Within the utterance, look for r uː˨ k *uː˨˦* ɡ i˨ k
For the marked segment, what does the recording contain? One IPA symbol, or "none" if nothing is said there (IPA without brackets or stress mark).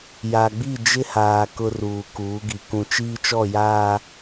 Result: uː˨˦